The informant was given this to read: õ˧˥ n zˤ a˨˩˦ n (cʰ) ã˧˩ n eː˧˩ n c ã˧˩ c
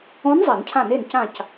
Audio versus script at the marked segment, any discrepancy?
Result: no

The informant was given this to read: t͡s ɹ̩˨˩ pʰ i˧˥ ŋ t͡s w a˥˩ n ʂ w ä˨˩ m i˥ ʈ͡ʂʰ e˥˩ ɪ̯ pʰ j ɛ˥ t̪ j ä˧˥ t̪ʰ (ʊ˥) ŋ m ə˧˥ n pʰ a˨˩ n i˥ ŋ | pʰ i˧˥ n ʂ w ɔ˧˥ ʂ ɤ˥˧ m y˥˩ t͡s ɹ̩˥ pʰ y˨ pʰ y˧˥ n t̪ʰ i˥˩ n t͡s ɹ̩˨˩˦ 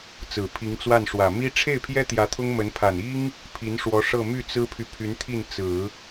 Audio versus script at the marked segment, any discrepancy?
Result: no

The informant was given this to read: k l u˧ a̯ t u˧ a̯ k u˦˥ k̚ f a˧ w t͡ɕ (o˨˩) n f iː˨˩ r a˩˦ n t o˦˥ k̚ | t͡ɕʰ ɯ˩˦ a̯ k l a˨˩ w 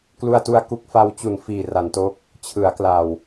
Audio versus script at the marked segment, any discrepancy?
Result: yes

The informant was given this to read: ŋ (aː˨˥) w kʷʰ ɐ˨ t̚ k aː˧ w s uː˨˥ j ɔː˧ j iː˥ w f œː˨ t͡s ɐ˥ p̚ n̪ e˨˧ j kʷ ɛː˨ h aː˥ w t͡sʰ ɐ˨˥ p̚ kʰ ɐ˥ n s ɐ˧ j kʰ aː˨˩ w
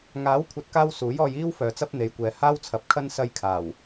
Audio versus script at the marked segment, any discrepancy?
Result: no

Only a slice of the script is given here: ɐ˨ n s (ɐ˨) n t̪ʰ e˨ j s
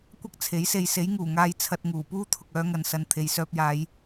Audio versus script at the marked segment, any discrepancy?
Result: no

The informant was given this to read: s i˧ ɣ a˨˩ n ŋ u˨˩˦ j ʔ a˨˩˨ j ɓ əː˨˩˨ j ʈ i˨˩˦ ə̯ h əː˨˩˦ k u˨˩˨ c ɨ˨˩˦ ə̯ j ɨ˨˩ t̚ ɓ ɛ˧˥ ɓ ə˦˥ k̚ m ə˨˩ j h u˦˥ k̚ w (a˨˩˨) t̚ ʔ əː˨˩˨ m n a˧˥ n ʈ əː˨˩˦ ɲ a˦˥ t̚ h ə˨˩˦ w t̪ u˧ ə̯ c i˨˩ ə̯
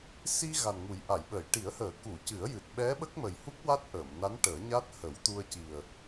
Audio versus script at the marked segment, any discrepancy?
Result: yes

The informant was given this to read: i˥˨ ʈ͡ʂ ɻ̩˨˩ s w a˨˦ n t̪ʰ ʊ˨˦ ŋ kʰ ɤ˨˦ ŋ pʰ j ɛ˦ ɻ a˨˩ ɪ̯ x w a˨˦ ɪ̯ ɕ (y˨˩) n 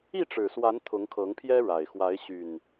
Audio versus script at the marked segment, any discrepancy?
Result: no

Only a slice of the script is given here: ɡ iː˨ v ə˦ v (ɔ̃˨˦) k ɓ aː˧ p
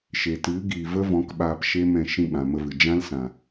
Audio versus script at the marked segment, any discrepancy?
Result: no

